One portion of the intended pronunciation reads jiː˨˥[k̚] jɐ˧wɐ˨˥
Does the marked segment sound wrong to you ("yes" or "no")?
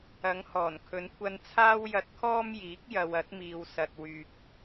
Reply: no